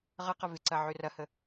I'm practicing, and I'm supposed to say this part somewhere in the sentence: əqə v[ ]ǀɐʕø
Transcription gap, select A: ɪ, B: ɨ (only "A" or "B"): A